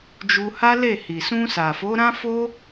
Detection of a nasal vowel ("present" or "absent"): present